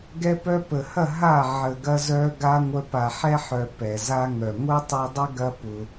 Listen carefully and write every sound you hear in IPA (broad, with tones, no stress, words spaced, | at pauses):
ɡɛ˧pœ˧pə˨hɐ˦˨ ɦa˦˨ ʕə˨ɡɐ˧zœ˧ ɡa˧ŋʷœ˧ pa˨ħɛ˧ħœ˨ pɛ˨za˦ ŋœ˨ ŋʷœ˦tˤu˧dˤə˦ ɡɐ˦pʊ˧